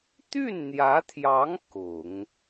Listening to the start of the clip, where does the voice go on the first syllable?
falling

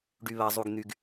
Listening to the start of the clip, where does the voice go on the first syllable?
low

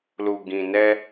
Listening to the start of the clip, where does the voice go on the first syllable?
low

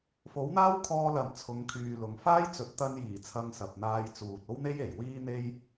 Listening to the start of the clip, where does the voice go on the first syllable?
rising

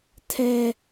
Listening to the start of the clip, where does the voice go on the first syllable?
high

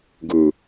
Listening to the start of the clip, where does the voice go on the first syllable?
low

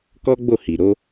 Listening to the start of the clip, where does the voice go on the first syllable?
high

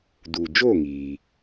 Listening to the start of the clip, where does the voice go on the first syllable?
low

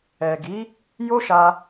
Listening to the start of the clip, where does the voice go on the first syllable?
low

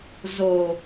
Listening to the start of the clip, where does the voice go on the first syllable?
low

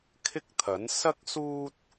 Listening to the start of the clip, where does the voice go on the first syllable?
high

